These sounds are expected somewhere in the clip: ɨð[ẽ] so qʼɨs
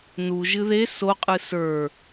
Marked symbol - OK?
no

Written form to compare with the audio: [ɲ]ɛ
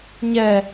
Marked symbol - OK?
yes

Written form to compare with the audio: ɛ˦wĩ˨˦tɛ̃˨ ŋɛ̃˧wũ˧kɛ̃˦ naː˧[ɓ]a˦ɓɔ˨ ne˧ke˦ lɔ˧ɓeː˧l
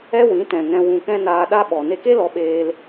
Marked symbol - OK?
no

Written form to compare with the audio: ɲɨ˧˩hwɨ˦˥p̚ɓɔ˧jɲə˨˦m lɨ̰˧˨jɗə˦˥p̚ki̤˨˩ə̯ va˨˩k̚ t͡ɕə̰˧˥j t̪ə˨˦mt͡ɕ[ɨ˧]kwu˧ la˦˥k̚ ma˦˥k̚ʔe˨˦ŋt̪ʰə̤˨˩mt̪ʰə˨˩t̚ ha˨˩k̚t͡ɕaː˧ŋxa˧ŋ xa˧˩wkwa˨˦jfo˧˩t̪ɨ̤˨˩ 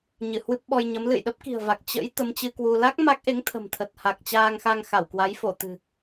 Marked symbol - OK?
yes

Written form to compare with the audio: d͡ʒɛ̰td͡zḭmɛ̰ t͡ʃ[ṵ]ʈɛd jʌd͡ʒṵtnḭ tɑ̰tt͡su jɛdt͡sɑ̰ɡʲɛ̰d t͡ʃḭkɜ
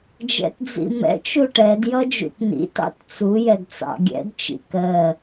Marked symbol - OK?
no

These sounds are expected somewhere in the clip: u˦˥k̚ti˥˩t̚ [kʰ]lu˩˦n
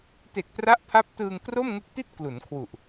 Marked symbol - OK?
no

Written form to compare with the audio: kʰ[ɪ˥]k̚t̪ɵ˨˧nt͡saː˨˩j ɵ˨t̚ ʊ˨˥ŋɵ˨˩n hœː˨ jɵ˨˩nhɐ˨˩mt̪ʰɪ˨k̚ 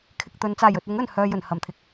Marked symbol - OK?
no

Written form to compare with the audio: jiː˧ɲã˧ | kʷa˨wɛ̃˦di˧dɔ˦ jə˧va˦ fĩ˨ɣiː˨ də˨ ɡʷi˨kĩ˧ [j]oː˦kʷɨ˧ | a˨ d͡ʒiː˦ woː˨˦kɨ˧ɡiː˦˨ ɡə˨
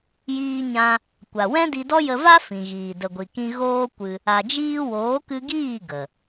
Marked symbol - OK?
no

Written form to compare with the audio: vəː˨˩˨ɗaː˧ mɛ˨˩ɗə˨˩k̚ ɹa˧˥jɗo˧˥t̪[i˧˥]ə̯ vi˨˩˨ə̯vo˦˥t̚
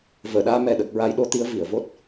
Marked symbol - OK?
yes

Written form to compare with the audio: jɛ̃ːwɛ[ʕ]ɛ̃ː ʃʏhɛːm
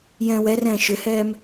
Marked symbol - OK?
no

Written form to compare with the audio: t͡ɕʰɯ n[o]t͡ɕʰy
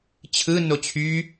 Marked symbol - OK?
yes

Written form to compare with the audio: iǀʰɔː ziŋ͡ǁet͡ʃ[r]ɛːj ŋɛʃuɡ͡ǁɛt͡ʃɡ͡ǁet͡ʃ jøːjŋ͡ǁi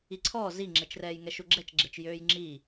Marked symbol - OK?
yes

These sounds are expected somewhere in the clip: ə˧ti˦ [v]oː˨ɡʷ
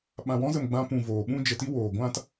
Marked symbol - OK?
no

